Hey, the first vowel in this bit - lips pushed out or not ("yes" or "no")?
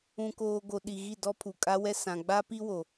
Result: yes